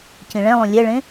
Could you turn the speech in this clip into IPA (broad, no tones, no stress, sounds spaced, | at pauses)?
c ĩ ɭ ɛ̃ lˠ ũ lʲ ɛ ɭ ẽ